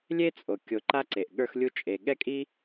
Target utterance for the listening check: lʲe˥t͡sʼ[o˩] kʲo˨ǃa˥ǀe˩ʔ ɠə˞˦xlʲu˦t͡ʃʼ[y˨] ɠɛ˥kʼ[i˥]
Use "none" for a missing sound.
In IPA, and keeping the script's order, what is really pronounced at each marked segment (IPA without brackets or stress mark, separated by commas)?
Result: o˩, e˨, i˥